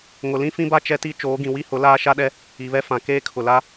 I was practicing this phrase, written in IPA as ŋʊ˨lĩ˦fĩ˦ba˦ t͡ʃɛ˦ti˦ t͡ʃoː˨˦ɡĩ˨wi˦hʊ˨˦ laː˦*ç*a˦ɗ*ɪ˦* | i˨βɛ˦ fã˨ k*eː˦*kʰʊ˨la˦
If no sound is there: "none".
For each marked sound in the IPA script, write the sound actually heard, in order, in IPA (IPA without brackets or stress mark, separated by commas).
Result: ʃ, ɛ˦, eː˦